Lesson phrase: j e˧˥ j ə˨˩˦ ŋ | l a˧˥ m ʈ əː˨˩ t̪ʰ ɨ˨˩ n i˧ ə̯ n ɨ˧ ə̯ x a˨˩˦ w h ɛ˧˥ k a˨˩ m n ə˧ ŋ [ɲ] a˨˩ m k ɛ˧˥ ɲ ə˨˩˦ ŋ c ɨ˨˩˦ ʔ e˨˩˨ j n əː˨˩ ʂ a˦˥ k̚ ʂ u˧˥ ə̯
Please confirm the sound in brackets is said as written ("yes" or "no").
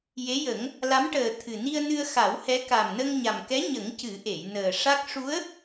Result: yes